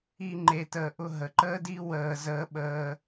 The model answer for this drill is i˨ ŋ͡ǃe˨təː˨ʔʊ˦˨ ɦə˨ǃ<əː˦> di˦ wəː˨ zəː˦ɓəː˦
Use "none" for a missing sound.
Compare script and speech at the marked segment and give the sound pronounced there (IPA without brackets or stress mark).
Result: əː˦